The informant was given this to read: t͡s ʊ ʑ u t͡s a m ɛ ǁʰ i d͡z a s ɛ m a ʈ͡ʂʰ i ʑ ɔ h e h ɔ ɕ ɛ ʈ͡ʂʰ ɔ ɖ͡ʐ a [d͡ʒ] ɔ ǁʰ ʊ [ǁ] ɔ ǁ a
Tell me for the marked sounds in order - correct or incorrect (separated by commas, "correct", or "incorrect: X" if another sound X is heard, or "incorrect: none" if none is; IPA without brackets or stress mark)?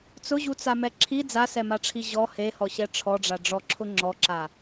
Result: incorrect: ɖ͡ʐ, incorrect: ŋ͡ǁ